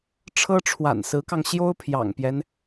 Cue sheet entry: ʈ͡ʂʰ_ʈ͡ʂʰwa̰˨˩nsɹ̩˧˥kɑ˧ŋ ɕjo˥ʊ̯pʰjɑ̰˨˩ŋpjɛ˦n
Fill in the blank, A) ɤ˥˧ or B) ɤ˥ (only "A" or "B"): B